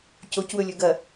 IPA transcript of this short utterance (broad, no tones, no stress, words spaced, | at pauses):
cocwɵlʲɵ ɡɐ